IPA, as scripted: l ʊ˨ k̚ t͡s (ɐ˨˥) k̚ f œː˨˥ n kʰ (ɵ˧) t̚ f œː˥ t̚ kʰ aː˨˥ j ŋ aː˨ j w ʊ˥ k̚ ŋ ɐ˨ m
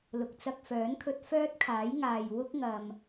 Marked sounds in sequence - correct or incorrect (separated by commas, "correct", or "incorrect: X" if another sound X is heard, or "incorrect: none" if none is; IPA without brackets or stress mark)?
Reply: incorrect: ɐ˧, correct